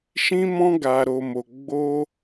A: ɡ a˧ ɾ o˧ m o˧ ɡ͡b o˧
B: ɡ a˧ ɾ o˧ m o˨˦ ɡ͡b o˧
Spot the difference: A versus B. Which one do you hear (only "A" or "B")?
A